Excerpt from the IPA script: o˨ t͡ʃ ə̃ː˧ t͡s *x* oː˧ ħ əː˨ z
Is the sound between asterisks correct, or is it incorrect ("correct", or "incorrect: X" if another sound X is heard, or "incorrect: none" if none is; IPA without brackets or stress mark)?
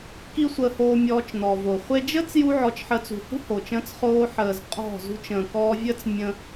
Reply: incorrect: χ